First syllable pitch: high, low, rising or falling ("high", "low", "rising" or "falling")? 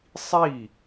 falling